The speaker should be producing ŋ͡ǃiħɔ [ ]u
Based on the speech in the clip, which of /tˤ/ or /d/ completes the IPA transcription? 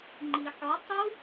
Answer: tˤ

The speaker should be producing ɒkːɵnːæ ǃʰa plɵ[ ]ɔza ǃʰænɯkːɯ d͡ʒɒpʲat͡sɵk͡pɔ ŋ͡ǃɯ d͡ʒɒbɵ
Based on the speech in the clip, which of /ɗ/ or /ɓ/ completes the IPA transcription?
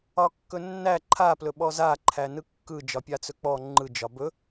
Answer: ɓ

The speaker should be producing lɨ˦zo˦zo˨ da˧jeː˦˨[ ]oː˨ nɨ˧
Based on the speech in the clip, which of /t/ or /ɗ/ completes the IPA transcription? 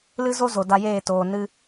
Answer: t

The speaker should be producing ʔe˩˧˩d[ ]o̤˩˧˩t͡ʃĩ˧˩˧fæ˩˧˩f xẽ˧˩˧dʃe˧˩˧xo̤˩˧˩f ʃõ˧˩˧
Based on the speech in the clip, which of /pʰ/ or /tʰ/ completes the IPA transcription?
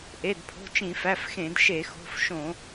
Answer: pʰ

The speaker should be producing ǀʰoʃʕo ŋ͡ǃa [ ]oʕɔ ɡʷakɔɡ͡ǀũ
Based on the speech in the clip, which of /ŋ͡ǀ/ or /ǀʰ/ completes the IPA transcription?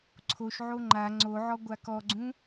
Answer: ŋ͡ǀ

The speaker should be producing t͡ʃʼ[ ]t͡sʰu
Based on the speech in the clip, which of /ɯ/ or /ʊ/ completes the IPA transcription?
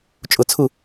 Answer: ʊ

